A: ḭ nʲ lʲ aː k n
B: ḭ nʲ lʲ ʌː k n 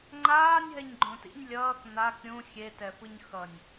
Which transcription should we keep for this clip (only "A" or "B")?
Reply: B